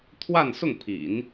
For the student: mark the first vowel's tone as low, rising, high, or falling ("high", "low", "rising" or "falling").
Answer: falling